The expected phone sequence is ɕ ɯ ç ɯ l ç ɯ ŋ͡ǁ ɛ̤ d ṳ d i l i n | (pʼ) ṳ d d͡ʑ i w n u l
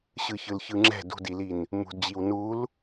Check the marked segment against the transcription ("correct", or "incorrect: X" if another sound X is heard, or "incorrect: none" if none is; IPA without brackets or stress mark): incorrect: m